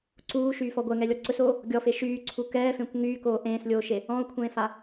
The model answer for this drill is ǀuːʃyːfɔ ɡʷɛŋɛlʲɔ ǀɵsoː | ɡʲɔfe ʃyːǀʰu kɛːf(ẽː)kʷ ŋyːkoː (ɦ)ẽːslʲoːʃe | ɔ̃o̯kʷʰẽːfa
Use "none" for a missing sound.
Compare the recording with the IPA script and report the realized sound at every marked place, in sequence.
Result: ẽ, ʔ

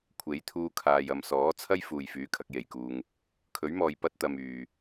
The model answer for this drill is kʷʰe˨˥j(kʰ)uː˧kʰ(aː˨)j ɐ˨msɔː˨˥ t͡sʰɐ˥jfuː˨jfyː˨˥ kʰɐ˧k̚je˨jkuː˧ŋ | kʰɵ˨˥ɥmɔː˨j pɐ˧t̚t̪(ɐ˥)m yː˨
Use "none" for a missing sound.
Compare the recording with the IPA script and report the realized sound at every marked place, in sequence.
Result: t̪ʰ, aː˨, ɐ˨

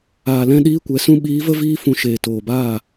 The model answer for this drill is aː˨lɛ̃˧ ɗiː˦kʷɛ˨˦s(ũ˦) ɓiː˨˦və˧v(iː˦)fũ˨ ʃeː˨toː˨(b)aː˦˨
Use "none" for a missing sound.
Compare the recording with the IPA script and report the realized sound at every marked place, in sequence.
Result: ũ˦, iː˧, b

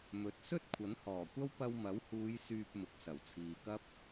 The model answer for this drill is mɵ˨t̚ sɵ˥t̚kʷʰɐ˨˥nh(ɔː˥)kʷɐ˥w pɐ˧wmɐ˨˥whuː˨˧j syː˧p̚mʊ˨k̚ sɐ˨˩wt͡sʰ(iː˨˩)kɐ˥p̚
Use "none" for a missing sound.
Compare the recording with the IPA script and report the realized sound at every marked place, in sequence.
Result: ɔː˨˩, iː˨

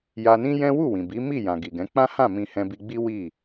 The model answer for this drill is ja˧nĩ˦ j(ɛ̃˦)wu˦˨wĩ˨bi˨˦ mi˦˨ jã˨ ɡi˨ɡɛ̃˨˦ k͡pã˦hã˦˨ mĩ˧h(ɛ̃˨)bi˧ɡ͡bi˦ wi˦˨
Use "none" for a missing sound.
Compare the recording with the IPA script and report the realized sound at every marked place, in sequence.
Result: ɛ̃˦, ɛ̃˧

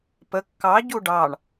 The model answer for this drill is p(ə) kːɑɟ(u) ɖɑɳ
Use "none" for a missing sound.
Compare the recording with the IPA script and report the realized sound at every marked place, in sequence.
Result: ə, u

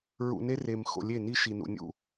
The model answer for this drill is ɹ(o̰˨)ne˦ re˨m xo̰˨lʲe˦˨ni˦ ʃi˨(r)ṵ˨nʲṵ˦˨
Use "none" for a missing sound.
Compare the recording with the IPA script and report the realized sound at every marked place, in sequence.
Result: ṵ˨, n

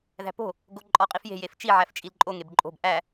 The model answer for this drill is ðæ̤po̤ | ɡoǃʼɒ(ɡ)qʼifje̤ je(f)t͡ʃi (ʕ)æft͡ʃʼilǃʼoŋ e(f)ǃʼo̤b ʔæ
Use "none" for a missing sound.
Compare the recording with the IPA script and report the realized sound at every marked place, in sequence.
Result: none, f, ʕ, b

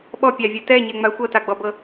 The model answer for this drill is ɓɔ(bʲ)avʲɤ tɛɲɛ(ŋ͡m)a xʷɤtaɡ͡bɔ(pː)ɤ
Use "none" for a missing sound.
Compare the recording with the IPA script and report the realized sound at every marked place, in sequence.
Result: pʲ, ŋ͡m, b

